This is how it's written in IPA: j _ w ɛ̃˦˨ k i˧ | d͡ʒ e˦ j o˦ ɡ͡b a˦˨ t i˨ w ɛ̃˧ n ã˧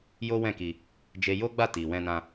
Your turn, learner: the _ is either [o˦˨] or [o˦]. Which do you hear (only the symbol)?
o˦